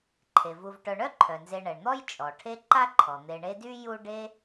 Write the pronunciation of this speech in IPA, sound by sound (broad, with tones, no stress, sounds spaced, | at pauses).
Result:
ǃʰ e˩ v u˨ v ʈ œ˨ ɳ œ˥ ǃʰ œ˩ n z e˨ ɳ ɛ˩ ɳ n̪ ɔ˥ j t͡ʃʼ ɔ˩ ʈʰ e˦ ǃ a˥ ǃʰ ɔ˩ n̪ e˨ ɳ e˦ d y˥ j u˥ ɖ e˦